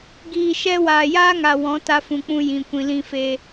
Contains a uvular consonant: no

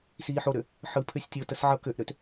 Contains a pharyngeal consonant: yes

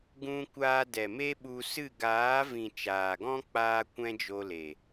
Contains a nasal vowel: yes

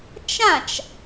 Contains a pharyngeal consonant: no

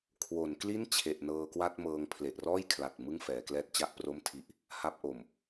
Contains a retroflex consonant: no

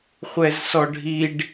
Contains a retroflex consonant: yes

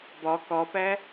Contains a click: no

